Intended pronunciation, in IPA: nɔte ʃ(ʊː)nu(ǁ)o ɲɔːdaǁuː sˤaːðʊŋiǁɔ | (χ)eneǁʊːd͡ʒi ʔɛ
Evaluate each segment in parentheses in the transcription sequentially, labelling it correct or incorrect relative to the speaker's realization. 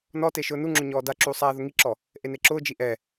correct, incorrect: ŋ͡ǁ, incorrect: ʔ

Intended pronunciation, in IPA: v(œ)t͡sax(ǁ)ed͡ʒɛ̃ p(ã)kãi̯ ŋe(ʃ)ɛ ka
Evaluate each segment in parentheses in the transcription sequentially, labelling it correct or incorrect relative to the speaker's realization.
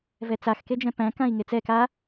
incorrect: ɛ, incorrect: k, incorrect: æ̃, incorrect: t͡s

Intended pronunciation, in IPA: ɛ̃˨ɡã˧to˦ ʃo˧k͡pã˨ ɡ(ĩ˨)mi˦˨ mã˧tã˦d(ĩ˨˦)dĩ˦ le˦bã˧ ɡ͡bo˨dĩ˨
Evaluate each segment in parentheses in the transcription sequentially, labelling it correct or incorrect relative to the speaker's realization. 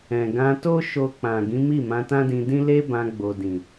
incorrect: ĩ˨˦, incorrect: ĩ˧

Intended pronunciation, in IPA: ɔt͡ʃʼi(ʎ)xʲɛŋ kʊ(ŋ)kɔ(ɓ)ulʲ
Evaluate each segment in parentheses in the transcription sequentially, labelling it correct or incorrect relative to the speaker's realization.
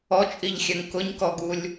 correct, incorrect: ɲ, incorrect: ɡ

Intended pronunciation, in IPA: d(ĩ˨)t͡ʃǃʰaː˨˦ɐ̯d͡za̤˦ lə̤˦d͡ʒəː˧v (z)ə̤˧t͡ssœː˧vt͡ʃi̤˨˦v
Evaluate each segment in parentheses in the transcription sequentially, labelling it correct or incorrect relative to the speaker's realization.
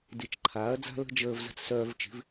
incorrect: i˨, correct

